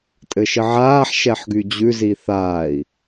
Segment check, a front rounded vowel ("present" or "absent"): present